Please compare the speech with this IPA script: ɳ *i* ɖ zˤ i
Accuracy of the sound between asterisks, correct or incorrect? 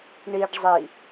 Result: correct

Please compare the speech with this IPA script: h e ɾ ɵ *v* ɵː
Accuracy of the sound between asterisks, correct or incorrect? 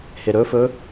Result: incorrect: f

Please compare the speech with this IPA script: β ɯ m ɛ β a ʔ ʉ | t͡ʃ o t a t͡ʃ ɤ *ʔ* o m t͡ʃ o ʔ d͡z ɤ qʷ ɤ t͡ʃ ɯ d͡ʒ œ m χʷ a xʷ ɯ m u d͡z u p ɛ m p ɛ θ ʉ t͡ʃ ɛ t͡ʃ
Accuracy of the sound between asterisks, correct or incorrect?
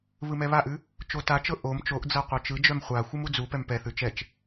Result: correct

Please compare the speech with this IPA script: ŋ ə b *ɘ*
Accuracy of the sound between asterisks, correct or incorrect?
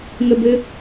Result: correct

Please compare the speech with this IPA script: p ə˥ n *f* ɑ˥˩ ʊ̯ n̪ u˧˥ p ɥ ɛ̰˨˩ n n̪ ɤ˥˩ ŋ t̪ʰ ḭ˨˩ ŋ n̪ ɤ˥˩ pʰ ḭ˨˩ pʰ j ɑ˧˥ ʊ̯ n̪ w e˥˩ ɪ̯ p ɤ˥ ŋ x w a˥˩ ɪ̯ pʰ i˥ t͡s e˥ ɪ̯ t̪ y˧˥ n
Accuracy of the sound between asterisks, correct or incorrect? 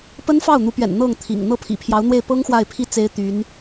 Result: correct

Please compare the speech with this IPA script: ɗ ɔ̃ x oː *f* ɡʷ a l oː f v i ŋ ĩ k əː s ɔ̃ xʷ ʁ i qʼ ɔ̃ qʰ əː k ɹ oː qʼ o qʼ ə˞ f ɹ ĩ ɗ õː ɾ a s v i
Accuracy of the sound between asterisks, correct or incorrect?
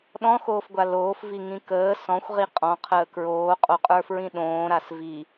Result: correct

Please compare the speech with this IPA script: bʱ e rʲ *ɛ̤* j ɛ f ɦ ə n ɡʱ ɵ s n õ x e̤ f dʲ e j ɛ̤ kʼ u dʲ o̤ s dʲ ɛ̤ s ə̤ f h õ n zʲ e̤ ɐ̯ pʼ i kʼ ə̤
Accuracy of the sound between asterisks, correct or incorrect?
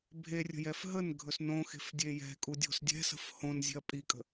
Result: incorrect: ə̤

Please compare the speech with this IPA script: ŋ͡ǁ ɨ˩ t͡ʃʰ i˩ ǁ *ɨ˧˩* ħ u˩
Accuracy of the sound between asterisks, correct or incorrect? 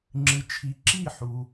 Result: incorrect: i˧˩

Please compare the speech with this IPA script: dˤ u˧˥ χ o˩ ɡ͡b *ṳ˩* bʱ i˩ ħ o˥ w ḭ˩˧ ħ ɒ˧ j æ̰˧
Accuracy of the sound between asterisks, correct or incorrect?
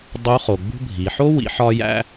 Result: incorrect: ṳ˥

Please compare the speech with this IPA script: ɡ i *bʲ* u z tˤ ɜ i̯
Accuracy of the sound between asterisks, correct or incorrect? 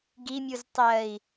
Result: incorrect: mʲ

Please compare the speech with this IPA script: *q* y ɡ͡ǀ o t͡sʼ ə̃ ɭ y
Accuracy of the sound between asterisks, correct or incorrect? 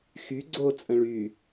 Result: incorrect: x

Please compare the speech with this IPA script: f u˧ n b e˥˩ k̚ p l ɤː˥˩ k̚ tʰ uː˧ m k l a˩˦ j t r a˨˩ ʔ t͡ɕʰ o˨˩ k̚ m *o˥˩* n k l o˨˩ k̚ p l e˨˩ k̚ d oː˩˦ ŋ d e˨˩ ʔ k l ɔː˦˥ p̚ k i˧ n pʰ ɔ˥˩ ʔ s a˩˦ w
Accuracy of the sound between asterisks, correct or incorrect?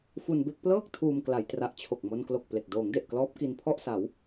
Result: incorrect: o˧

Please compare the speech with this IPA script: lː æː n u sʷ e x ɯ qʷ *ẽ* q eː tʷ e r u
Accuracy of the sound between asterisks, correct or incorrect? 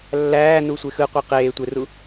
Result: incorrect: e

